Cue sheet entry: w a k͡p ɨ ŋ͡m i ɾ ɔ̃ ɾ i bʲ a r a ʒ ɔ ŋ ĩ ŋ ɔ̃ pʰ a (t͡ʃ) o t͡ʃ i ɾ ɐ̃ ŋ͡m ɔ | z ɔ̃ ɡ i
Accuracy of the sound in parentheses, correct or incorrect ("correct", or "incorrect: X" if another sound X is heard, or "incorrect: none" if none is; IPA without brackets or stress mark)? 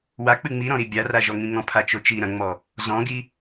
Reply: correct